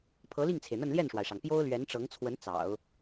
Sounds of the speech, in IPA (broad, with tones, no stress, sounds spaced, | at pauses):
pʰ ɤ˧˥ l i˥˩ ŋ t͡sʰ e˩ ɪ̯ n̪ ə˥˧ n l j ɛ˥˩ n ʂ w a˩ ɪ̯ ʂ ɑ˩ ŋ p j o˥ ʊ̯ l ɥ ɛ˧˥ n ʈ͡ʂ ɤ˧˥ ŋ t͡sʰ w ə˧˥ n t͡s ɑ̰˨˩˦ ʊ̯